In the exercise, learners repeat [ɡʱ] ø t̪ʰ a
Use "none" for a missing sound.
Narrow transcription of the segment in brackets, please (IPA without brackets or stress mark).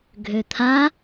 ɡʱ